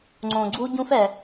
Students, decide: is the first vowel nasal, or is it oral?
nasal